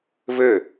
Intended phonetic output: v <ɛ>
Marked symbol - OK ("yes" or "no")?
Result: no